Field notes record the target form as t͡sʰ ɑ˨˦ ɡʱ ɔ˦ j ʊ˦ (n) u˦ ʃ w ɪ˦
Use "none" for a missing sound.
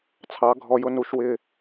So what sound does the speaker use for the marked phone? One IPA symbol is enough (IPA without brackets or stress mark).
n